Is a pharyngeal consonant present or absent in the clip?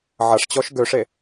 present